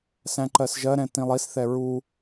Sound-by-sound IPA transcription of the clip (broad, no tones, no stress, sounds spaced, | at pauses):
s æ̃ ǃ ɜ s ʒ ɜ ɾ ɛ̃ t ĩ lˠ i s θ ɛ ɹ u